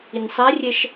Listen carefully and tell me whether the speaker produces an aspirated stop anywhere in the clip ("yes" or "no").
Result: no